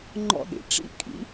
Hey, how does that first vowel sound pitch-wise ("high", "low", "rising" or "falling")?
high